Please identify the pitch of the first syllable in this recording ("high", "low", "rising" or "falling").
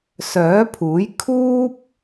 rising